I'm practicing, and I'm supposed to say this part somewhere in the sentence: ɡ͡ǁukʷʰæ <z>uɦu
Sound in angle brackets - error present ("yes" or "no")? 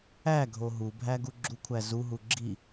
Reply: no